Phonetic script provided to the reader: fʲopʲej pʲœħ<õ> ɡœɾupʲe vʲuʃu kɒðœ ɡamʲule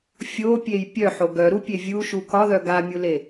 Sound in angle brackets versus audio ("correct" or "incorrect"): incorrect